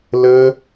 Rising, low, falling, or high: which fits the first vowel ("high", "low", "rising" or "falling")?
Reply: high